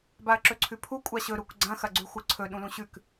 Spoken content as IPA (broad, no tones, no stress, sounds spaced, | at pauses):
b a ɐ̯ ǁ ɵ ǀʰ ʉ pʰ u kʷʼ a ɕ ɵ ɾ u k ɡ͡ǀ ɐ̃ x ɐ ɡ͡ǀ ʉ xʷ ɨ ǀʰ ɵ ɗ ũ l ũ ɕ ʉ k